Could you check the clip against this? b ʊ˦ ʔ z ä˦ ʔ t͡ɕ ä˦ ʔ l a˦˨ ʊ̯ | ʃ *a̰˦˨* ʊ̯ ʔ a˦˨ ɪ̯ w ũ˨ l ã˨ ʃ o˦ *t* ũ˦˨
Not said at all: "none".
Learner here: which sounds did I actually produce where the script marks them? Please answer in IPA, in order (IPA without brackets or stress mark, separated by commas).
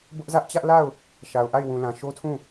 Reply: a˨, tʰ